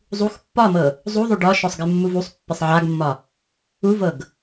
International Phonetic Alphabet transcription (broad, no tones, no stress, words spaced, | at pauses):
zˤux pːɒmɤ | zˤuðˤu ɖɒʃɔsˤ ɡɪmːuvusˤpːɪsˤ ʕaɡmːɒ | uvɤɡ